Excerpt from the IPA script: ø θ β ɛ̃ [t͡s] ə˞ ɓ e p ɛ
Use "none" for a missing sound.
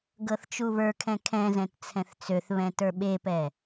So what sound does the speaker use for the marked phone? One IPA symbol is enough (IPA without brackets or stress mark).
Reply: t